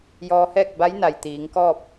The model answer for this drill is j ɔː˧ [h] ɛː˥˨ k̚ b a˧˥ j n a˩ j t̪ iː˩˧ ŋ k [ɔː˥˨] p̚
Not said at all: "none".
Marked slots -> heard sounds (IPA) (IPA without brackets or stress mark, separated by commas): h, ɔː˥˨